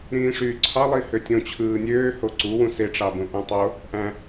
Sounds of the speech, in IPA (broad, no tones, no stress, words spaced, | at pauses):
ɾĩːʂyːǀʰɑ lˠihøtʲõt͡ɕʰɯː nʲøːho ǀu wũseʈ͡ʂɑ bũʔõtˤo | ʔæ̃